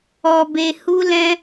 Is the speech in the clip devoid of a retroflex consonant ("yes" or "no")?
yes